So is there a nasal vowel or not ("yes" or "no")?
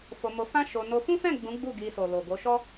yes